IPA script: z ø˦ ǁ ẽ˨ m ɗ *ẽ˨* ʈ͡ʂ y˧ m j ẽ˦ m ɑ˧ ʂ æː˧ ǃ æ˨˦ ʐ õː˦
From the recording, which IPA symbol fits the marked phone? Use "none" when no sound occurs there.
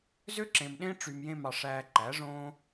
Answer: ẽ˦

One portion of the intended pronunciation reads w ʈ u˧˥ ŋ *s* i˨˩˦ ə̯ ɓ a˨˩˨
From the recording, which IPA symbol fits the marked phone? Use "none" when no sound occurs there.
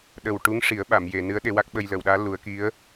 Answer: ʂ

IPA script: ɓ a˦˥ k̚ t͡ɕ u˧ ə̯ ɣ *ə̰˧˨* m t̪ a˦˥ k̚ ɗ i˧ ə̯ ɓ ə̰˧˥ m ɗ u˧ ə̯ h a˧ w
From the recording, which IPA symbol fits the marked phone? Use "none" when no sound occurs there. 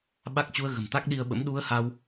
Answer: ə̤˨˩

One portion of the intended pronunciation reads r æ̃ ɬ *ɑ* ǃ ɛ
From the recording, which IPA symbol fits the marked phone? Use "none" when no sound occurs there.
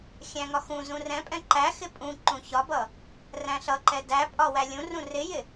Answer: ʌ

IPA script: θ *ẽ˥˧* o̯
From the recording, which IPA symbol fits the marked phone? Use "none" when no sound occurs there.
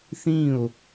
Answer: ĩ˥˧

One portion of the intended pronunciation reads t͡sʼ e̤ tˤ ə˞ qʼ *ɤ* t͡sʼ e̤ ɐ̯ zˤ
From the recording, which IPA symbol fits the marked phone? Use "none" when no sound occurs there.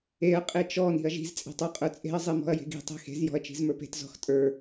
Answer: ə˞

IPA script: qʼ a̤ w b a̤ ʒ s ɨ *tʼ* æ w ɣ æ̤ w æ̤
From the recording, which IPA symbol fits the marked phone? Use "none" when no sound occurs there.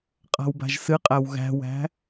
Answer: qʼ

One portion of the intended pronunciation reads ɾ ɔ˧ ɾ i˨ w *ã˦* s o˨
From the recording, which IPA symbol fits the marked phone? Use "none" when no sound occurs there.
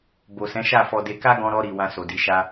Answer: ã˧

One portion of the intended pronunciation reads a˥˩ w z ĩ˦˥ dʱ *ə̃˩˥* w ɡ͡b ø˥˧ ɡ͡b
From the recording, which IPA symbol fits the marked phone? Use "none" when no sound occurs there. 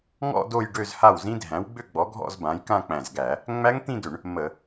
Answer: æ̃˩˥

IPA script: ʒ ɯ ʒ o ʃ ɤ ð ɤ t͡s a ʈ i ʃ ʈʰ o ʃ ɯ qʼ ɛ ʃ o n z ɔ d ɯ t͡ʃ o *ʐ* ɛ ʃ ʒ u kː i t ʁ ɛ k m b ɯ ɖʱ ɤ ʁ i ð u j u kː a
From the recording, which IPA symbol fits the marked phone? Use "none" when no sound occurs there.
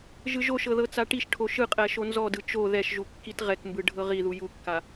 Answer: ð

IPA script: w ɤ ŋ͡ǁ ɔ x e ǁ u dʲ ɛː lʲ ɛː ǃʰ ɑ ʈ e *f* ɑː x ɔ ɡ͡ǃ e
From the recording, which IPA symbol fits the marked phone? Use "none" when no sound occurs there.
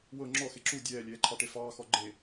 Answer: f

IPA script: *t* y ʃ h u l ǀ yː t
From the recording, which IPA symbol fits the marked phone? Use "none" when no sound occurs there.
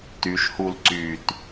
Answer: t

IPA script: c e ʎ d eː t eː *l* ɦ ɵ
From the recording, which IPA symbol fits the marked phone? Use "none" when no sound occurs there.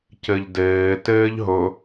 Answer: ʎ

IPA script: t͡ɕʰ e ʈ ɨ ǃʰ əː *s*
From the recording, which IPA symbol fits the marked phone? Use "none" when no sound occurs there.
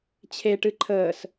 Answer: s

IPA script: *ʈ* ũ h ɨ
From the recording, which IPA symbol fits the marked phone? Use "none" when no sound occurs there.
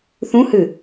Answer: θ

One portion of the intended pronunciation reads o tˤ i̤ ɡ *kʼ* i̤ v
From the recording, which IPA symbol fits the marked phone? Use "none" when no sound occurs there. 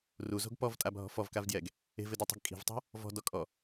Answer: kʼ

